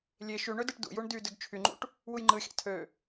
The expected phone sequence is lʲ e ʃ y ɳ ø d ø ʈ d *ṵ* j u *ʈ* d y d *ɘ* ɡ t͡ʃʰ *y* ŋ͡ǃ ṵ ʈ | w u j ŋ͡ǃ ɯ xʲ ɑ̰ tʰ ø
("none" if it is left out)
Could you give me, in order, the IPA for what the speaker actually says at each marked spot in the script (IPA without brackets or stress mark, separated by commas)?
ṵ, ɳ, ø, y